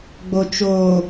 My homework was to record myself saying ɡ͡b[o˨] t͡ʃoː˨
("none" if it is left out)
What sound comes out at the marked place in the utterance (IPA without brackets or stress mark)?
o˨